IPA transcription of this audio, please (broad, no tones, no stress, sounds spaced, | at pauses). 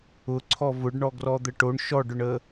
ʊ ǀʰ ɔ v ʊ ɖ ɳ ɔ ɡ r ɔ d̪ ə ʈ o ɳ ʃ ɔ ɖ ʊ ɳ ə